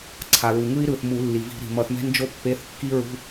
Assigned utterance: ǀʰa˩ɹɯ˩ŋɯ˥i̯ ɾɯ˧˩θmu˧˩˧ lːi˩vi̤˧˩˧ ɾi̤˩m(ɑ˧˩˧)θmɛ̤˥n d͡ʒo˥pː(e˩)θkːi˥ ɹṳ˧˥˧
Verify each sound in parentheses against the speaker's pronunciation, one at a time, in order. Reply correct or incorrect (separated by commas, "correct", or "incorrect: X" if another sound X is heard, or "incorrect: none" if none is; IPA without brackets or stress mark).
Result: incorrect: ʌ˧˩˧, incorrect: e˧˥˧